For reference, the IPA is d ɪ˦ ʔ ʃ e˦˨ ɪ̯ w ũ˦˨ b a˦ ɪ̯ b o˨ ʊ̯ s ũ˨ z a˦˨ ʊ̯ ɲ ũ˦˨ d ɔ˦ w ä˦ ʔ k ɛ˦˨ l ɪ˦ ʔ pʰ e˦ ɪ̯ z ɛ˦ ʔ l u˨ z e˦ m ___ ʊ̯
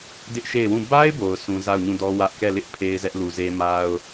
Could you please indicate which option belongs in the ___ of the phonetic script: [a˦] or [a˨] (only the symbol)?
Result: a˦